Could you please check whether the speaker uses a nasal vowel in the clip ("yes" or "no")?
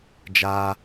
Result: no